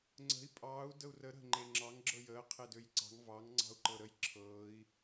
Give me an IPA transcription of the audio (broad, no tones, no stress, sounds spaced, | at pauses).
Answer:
ŋ͡ǀ ə̤ i̯ pʼ ɑː u̯ d ə u̯ r ə ɾ ə̤ ŋ͡ǃ e ŋ͡ǁ ɑ ŋ ɡ͡ǁ ɤ j əː qʰ e d ø j ǀ ɑ̤ ŋ v ɑ ŋ ŋ͡ǀ ɑ̤ u̯ ǃ ɤ ɾ ə j ǁʰ ɤː i̯